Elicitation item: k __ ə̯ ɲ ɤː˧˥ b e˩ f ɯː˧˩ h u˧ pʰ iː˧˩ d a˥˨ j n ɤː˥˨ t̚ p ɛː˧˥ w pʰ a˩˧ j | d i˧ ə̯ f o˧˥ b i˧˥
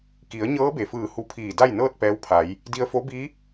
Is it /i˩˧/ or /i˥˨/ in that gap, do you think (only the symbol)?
i˩˧